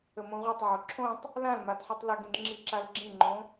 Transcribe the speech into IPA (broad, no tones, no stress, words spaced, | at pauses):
əmõʁʷɘtˤʕo ǁʰõtˤ | lãlmad ħitˤləɡĩd ŋ͡ǁiǁalɡ͡ǁĩŋ͡ǃõ